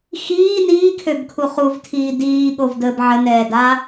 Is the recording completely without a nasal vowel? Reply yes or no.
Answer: yes